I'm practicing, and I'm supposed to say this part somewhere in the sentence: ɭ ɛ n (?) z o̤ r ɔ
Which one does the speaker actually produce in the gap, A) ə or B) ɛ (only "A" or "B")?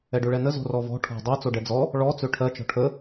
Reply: A